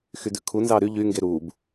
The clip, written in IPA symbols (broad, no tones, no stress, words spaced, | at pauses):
xydʉ kʰu nzɑːɾy ʎy ŋɡeɾuːb